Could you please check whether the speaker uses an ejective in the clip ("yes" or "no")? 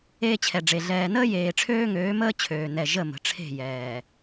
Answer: no